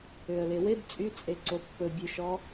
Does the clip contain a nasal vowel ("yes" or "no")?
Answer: no